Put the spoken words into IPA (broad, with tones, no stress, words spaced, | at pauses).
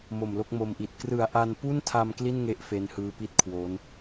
mo˨˩mlo˥˩k̚mo˧mʔi˨˩t̚ krɯ˨˩a̯ʔa˧npu˥˩ntʰa˧m kli˥˩nŋe˦˥ʔ fe˦˥nhɯː˦˥pi˥˩t̚kʰwoː˦˥n